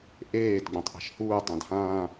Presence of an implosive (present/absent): absent